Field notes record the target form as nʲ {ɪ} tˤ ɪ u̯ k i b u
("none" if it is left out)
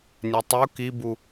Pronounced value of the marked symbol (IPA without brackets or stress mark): ɛ